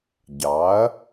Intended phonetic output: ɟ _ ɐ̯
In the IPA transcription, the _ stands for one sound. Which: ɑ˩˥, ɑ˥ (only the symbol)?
ɑ˩˥